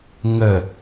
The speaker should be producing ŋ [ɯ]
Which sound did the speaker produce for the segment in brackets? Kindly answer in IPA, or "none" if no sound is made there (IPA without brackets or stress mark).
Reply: ə